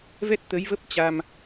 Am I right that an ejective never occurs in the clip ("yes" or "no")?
yes